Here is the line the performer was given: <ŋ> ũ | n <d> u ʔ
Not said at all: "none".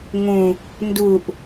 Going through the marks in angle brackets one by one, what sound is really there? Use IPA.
ŋ, d

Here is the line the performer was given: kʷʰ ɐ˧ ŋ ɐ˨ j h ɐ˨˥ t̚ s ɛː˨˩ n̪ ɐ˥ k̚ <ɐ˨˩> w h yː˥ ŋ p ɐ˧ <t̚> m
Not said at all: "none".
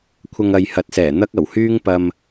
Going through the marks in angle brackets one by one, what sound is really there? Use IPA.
ɐ˨˩, none

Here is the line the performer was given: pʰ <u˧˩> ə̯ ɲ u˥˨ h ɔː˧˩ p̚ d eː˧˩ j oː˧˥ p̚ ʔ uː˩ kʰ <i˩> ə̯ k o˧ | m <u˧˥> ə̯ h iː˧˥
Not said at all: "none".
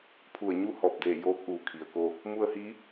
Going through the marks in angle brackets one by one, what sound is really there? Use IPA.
u˧˩, i˩, u˧

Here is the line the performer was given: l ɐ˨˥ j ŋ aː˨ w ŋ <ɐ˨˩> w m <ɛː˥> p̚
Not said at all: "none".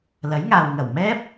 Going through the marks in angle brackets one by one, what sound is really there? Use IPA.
ɐ˨˩, ɛː˥

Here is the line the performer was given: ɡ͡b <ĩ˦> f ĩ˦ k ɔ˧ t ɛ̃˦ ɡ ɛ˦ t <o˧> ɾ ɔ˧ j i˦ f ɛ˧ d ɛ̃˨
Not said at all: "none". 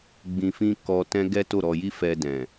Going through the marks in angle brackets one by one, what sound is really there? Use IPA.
ĩ˧, o˦˨

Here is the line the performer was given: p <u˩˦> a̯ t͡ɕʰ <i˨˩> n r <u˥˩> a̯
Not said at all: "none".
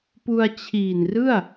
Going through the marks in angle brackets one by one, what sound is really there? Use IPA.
u˧, iː˨˩, ɯ˥˩

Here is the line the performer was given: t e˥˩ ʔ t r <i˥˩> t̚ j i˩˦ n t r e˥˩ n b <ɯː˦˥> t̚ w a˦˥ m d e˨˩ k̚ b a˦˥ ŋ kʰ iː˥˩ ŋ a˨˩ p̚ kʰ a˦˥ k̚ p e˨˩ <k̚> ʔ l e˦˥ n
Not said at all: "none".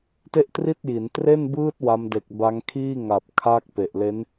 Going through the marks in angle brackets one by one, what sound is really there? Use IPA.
i˥˩, ɯː˦˥, none

